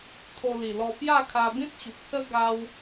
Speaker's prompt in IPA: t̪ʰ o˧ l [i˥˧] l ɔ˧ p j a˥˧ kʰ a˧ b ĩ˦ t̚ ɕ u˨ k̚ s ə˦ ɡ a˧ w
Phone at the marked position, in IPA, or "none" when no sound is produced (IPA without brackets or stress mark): i˨˩